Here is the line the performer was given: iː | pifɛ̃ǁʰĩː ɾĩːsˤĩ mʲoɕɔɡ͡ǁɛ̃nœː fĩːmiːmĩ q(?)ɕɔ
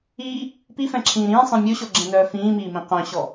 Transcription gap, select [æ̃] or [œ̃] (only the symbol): œ̃